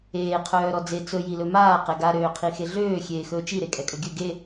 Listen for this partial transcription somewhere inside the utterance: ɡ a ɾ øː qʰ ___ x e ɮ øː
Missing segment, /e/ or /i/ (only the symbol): i